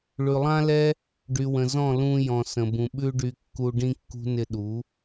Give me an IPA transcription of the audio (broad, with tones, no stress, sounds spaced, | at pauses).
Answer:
ɭ ʉ˨ lˠ ã˦ l ɛ˦ | ɖ y˨ w ə̃˨ z ɔ̃˦˨ l ũ˧ j ɔ̃˨ s ə̃˨ b ũ˨ ɓ ʉ˦ ɖ y˧ kː u˦ ɖ ĩ˦ kː ṳ˦ n ɪ˧ ɗ u˨˦